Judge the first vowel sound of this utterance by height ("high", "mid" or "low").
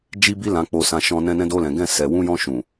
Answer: high